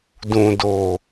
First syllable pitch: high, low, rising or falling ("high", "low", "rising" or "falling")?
low